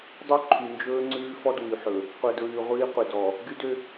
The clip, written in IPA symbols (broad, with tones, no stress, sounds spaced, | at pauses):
dˤ œ˦ ǃʰ y˨ n d͡ʒ ɵː˦ ŋ͡ǀ ʉː˦ f ɔ˦ d w y˨ ħ ɵ˨ | qʷ œ˨ d ɹ ʉː˨ ʁʷ iː˦ qʷ e˨ d ɔ˨ | ɡ y˦ d ø˦